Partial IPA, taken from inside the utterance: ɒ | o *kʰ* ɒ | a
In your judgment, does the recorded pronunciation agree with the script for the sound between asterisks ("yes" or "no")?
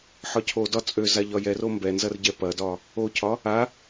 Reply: no